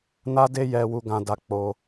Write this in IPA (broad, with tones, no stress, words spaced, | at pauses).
na˦de˦jɛ˧ wu˧ɡã˧da˧ k͡po˧